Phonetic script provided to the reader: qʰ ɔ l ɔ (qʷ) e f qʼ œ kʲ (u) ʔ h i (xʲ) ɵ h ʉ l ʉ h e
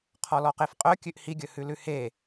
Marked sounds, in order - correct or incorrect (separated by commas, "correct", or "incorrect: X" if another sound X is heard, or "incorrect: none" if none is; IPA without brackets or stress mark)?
incorrect: q, incorrect: ʉ, incorrect: ɡʲ